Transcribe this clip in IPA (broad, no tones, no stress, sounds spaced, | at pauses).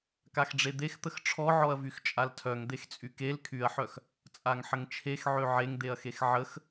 k a x ɖ͡ʐ e d̪ e x t̪ ə x ʈ͡ʂʰ ɔ ʕ ɔ ɐ̯ v y x t͡ʃʼ a l tʰ œ ŋ d̪ e x t͡sʼ y k e l kʰ y ɐ̯ ħ œ x | t͡sʼ a ŋ ħ ə ŋ t͡ʃʰ e x ʕ ø ʕ e ŋ d̪ e ɐ̯ x e x ʕ ə x